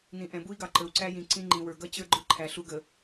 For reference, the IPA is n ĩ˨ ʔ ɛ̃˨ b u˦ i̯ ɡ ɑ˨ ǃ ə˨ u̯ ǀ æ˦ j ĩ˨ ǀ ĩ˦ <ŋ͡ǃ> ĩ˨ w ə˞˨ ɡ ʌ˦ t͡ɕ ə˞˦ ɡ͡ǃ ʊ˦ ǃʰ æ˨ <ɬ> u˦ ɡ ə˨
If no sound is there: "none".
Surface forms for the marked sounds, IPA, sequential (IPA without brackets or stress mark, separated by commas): ŋ͡ǃ, ɬ